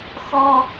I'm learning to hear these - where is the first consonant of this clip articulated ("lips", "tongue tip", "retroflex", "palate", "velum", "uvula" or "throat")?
velum